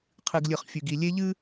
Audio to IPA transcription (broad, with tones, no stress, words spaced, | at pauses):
qʰɨ˨ɡlʲɨ˨χ fʲʉ˨ɡi˨ lʲe˦ʎɨ˦